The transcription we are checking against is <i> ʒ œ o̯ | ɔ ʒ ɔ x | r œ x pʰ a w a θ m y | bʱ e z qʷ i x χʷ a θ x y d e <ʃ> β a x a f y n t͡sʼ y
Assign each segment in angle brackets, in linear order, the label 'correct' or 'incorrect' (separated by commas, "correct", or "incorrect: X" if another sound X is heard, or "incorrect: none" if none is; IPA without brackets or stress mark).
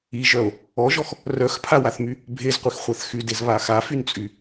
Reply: correct, incorrect: z